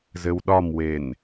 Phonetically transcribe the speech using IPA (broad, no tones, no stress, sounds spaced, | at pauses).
z ɘ w ɗ ɒ m w e n